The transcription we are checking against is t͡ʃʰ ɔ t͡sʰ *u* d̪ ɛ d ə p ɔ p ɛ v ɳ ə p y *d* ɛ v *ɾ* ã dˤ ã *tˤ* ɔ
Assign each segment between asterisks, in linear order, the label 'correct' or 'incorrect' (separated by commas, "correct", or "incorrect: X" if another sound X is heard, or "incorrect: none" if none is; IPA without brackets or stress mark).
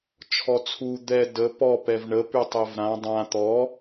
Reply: correct, incorrect: tˤ, correct, incorrect: t̪